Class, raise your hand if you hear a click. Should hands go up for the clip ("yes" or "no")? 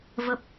no